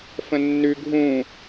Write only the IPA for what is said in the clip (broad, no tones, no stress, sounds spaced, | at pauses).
f ə̃ nː ʉ ɡʱ ũ